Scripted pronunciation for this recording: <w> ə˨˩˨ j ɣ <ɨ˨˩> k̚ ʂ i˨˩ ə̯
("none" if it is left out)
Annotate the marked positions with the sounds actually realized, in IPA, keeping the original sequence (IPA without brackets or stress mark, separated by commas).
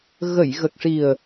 ɣ, ə˨˩